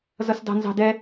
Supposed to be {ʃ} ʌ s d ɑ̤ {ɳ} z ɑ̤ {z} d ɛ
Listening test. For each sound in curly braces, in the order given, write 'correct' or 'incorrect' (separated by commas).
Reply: incorrect, incorrect, incorrect